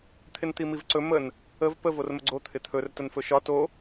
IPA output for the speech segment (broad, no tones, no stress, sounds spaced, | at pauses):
t̪ʰ ɪ n t̪ i m i v ǀ ɵ m ə n | ə v p ə v o r m ə ɡ͡ǀ o t̪ʰ ɪ t̪ʰ ɵ r t ə n f ɵ ʃ ɒ t o